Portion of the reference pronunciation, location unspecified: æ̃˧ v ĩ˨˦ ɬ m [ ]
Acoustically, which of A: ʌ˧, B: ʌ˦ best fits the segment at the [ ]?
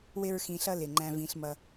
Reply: A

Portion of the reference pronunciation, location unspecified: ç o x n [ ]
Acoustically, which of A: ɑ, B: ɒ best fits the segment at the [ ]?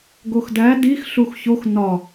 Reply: B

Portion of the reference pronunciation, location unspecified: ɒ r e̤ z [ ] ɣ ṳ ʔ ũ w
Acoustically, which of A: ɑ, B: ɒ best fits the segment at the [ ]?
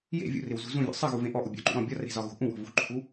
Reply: B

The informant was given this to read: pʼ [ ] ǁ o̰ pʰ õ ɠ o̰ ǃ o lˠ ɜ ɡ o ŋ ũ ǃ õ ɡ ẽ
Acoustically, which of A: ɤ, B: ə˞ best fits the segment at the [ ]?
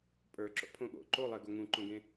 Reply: B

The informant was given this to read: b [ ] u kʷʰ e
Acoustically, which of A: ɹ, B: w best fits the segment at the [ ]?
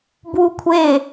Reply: B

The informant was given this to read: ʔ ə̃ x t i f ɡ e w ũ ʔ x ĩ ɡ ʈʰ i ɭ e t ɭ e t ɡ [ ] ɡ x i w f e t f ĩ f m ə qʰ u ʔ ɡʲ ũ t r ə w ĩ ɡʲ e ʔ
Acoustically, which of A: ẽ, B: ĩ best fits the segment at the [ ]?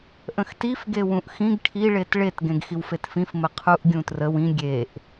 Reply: A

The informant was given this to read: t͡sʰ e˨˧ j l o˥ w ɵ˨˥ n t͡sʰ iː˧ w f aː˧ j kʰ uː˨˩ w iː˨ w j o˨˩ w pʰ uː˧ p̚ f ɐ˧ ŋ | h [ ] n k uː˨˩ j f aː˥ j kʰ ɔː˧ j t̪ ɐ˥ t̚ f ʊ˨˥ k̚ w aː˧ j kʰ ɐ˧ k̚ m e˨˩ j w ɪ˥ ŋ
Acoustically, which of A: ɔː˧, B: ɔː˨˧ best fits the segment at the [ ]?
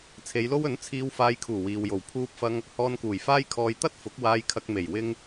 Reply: A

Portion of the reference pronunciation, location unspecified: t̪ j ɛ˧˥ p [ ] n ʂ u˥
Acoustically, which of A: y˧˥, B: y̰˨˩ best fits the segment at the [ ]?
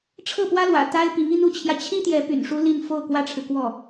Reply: B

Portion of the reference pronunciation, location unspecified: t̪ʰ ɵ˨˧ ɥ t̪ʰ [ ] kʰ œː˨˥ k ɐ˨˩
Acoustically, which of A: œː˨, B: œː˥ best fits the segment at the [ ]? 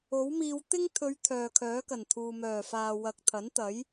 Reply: A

